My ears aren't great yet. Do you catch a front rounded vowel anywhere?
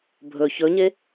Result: no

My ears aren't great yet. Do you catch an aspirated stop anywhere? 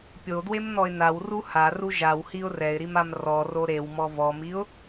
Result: no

